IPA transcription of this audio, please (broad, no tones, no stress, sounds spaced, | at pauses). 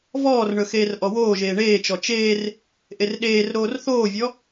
v ɔː r ɳ ɵ x eː r ʔ ɔ w oː ʒ eː ɳ eː t͡ʃ ɔ t͡ʃ eː r | ʔ e r ɗ eː r ɾ oː r θ oː vʲ ɔ